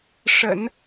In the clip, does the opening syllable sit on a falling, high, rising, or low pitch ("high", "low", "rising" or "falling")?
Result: low